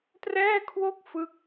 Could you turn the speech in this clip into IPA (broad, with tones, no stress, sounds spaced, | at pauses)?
t r ɛː˥˩ kʰ w o˥˩ k̚ f ɯ˦˥ k̚